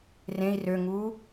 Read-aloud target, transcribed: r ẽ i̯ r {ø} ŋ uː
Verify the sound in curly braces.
correct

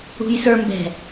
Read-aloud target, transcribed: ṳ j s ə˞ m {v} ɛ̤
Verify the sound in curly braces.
incorrect: b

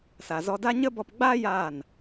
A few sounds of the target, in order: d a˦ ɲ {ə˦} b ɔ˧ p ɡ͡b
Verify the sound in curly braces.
correct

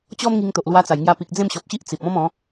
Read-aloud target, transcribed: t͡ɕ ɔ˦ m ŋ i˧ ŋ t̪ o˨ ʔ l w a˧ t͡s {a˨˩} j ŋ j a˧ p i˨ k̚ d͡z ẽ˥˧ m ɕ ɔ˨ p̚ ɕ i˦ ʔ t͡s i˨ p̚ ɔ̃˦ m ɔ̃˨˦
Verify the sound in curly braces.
correct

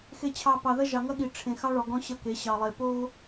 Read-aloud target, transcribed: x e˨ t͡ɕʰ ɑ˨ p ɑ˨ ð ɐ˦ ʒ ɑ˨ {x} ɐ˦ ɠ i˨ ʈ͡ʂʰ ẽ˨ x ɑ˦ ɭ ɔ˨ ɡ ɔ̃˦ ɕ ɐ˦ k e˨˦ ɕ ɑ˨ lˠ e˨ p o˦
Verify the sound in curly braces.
incorrect: ŋ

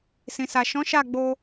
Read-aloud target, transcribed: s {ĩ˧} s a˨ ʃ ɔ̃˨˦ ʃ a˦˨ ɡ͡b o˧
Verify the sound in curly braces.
incorrect: ĩ˨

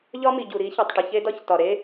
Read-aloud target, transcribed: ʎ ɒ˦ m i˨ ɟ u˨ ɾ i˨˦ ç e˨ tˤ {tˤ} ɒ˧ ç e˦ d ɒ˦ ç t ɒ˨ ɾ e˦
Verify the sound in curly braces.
incorrect: ʈ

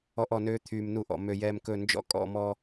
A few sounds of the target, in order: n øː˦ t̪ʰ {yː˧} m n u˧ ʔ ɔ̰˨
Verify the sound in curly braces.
correct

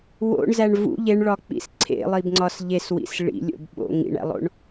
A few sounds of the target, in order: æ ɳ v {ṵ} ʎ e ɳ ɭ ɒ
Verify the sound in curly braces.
correct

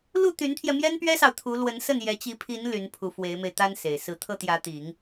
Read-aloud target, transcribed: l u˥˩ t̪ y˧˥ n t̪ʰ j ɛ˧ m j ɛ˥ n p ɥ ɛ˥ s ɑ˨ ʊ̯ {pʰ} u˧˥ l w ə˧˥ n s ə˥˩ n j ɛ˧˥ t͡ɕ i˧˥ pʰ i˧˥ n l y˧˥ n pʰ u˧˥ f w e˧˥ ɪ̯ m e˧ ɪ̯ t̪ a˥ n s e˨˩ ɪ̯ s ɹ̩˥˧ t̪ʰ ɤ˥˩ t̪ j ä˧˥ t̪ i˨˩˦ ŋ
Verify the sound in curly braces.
incorrect: t̪ʰ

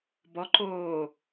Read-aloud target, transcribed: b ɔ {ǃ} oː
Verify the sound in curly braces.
correct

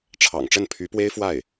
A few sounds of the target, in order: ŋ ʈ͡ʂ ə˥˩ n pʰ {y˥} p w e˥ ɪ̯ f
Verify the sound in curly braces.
incorrect: y˧˥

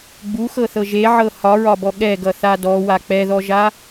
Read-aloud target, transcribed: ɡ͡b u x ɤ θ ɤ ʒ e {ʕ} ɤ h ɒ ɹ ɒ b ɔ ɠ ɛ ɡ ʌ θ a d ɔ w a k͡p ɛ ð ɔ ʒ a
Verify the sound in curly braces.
correct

